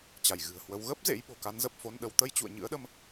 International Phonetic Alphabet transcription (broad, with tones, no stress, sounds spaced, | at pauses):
t͡ɕ a˧˩ j ɣ ɨ̤˨˩ ə̯ h w ə˨˦ w ɣ ə˦˥ p̚ z ḛ˧˥ j ɓ o̤˨˩ k a˨˦ n z ə˨˩ p̚ f o˧ n ɗ ə˨˦ w t̪ ə˧ j t͡ɕ ṵ˧˨ ə̯ ɲ ɨ̰˧˥ ə̯ ɗ ə˧ m